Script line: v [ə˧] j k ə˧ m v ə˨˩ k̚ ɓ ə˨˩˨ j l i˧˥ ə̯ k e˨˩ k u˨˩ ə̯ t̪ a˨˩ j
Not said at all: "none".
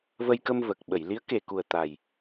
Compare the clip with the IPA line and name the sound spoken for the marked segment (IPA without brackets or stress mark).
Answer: ə˧